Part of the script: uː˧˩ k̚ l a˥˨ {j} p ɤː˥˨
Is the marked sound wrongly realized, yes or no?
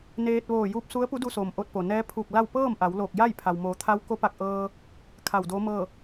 yes